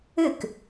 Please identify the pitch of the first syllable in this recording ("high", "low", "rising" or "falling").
falling